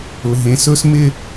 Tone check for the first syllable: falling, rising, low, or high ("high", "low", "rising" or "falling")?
low